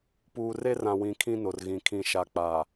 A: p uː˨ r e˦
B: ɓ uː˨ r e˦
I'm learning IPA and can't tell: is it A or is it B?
A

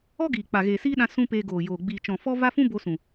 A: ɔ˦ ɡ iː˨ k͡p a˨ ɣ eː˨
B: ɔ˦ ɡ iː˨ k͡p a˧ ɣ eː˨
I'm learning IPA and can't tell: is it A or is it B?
A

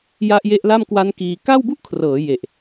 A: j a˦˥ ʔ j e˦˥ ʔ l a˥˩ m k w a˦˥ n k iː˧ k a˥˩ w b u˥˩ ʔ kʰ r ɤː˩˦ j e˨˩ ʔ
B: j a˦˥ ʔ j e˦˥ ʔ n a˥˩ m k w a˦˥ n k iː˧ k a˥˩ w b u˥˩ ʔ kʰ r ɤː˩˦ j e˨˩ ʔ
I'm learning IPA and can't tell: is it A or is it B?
A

